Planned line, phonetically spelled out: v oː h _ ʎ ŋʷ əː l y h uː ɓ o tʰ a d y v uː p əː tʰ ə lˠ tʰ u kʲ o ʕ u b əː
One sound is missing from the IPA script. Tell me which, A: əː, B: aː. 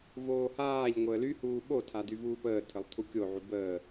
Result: B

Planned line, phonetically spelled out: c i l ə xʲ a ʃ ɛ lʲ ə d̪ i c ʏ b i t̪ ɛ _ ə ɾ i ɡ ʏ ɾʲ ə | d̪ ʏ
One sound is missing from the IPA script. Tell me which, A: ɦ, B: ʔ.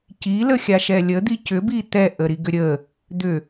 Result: B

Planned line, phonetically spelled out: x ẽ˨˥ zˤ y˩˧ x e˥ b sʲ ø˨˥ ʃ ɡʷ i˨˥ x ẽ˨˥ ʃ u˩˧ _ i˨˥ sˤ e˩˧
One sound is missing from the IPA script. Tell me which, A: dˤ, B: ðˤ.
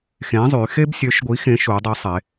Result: A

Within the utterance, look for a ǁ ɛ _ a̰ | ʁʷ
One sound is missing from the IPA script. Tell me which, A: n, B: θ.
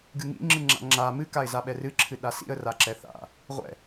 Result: B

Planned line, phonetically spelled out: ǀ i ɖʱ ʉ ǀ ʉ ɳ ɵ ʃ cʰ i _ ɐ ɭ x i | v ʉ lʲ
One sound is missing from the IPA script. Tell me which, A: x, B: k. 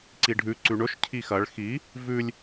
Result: A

